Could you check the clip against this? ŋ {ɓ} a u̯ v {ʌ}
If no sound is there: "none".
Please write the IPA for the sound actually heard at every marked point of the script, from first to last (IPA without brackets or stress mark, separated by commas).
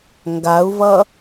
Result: ɡ, ʌ